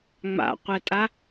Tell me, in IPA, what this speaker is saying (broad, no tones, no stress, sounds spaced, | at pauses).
ŋ͡m a̰ qʷ ɛ tʼ a